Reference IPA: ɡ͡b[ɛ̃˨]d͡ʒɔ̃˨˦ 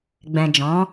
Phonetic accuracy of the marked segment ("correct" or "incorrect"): correct